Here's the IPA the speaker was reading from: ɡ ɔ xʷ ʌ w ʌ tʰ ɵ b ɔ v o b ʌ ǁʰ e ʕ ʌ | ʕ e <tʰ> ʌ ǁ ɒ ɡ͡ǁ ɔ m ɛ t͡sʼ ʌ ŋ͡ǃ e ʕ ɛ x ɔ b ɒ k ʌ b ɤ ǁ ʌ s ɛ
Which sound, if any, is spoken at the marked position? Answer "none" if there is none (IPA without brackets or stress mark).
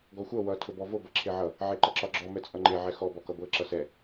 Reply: ǃ